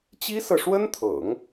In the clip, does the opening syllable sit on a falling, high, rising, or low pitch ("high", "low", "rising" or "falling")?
high